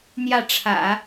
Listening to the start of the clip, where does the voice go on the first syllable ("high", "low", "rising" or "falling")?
falling